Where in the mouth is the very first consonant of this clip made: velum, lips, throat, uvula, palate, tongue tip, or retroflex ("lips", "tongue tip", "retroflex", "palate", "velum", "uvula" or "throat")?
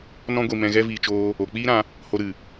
tongue tip